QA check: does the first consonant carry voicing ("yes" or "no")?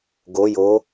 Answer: yes